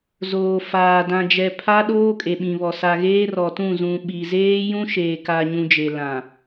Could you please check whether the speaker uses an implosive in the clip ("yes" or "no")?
yes